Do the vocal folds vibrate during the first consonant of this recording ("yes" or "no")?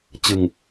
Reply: no